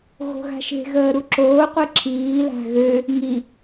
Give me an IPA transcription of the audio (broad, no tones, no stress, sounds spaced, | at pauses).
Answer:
ɣ o̤ ɣ a̤ ʃ e̤ ɣ əː ɾ u ǁ oː qʷ i ǁʰ iː l a̤ ɣ ø | ŋ i